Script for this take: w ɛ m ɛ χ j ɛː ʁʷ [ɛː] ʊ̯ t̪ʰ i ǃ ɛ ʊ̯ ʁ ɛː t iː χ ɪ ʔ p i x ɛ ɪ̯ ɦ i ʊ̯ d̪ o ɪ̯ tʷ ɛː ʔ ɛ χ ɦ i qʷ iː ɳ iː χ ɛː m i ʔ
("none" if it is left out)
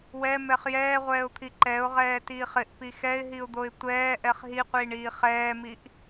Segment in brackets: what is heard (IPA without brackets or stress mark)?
ɛː